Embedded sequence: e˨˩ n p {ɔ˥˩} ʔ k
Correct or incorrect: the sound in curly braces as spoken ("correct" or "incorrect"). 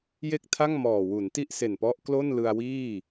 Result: incorrect